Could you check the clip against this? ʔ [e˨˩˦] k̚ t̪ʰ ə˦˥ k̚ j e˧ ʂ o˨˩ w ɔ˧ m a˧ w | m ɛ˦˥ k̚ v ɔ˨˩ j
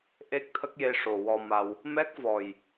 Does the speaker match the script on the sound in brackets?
no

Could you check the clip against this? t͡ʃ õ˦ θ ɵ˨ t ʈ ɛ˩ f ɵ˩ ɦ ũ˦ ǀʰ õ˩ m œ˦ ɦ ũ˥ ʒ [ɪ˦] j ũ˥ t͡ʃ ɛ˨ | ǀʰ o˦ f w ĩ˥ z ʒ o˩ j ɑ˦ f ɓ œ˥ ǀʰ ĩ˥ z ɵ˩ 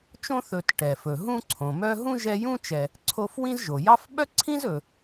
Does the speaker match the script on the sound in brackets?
no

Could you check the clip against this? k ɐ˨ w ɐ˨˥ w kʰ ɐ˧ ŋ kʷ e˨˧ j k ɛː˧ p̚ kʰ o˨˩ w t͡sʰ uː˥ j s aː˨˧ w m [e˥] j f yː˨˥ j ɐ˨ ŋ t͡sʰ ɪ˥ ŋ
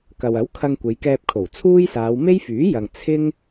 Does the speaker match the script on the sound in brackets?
yes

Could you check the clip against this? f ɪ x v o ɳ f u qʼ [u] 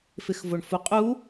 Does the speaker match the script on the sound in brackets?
yes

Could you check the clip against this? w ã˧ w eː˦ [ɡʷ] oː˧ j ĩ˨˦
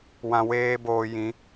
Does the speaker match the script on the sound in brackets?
no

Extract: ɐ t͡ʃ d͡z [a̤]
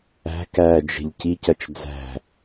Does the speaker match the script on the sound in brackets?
no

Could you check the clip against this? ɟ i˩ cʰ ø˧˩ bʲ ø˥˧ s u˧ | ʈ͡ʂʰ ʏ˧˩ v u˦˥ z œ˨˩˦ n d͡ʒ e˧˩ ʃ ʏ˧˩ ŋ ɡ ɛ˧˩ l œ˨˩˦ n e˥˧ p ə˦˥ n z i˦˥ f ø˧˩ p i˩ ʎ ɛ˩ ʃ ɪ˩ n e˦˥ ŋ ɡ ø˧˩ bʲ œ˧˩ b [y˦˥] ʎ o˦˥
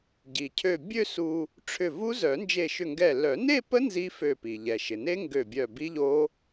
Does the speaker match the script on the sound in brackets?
no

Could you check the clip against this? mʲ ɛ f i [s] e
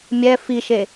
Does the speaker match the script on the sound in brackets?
no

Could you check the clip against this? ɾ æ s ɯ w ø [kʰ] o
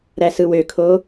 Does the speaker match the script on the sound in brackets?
yes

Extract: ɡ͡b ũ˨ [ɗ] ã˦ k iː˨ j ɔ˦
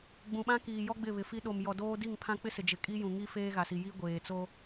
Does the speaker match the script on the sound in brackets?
no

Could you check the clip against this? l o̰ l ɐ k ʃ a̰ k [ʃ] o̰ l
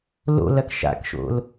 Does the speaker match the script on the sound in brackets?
yes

